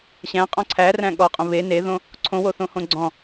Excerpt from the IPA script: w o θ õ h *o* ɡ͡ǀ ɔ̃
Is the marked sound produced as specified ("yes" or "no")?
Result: no